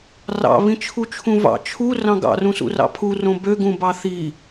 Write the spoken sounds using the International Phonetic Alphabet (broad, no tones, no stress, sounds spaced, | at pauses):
r ɑ̰ β ĩ t͡ʃʰ u t͡ʃʰ ũ v ɑ̰ t͡ʃʰ u r ɑ̃ ɡ ɑ̰ r ũ s ṵ r ɑ̰ pʰ u r õ b ø ɡ ũ b ɑ θ i